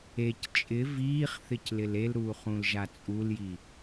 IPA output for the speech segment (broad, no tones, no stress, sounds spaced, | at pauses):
e c t͡ʃʼ ɪ v iː χ θ ɪ c l ɪ l e l ɾ uː χ ũ l ʒ a t͡sʼ u l j i